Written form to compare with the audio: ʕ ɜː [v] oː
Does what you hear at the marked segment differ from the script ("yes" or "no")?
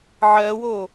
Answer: yes